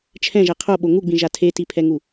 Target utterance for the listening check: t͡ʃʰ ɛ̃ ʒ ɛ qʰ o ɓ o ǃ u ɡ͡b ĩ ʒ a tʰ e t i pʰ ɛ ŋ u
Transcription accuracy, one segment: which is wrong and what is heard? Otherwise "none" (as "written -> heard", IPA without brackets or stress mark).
ǃ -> ŋ